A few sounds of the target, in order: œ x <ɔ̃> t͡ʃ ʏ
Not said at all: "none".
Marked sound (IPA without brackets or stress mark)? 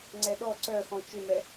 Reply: ɔ̃